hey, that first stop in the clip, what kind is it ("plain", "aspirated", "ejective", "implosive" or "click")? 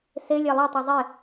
plain